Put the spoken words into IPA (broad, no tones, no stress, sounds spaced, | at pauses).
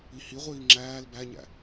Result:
i h i ʁʷ iː ŋ͡ǁ æː l b æ ɲ æ̰